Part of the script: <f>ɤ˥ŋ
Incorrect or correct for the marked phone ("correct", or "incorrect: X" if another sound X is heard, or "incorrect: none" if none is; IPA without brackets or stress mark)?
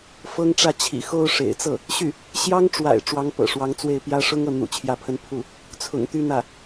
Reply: correct